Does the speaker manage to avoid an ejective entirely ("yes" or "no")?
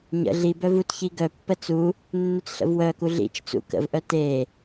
yes